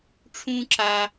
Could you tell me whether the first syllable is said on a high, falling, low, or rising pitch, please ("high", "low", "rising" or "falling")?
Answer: high